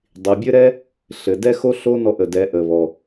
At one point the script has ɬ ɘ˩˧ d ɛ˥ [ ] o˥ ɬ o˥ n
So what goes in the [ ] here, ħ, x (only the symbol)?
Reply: x